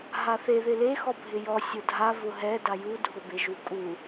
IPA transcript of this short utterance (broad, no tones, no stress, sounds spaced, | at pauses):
ɦ a θ e ð ɪ l e x ɔ bʱ ɪ j ɔ sʲ ʊ dʱ a v ʊ ɦ ɛ d a j u dʱ ʊ b e ʒ u kʼ u